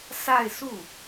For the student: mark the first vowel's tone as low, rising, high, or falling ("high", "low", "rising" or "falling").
falling